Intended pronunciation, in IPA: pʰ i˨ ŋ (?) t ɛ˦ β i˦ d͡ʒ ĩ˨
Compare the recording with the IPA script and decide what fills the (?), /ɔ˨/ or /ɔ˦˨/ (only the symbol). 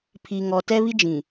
ɔ˨